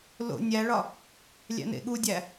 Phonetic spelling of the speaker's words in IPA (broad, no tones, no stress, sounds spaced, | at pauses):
l o̰ nʲ æ ɭ ɒ | lʲ æ̰ n ḛ ɠ u dʲ æ